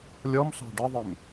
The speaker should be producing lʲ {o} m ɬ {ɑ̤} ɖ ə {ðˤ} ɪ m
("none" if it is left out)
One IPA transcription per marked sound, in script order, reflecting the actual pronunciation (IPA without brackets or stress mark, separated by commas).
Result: ɔ, ɑ̤, ðˤ